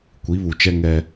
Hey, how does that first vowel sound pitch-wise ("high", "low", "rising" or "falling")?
rising